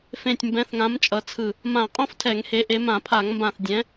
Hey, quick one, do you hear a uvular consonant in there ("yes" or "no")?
yes